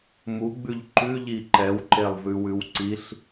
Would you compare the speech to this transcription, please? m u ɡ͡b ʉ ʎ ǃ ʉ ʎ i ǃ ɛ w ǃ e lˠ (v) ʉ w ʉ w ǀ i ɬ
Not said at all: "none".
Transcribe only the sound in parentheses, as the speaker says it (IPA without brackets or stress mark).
v